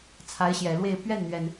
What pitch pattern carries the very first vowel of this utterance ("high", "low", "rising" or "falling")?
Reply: rising